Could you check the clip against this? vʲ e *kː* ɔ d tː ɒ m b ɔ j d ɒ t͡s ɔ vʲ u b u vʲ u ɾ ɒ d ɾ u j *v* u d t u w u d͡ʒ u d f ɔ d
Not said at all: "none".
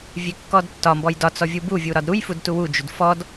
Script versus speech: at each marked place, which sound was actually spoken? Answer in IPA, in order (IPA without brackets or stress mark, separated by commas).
kː, f